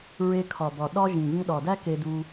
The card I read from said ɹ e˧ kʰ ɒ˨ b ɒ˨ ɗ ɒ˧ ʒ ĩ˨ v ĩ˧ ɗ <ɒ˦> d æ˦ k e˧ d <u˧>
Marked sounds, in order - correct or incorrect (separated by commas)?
incorrect, correct